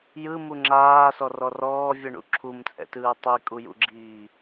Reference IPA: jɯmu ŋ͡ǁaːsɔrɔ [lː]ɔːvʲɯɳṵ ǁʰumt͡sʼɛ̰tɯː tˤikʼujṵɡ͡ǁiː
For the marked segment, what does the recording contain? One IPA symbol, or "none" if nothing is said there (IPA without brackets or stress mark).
r